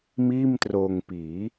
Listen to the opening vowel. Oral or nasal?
oral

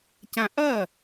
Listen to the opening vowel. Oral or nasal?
nasal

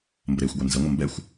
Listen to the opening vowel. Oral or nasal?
oral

